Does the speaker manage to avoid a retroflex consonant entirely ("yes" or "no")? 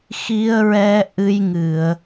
yes